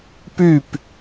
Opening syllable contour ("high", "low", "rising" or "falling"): falling